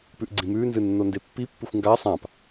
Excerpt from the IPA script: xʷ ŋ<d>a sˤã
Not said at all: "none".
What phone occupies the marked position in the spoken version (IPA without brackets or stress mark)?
ɡ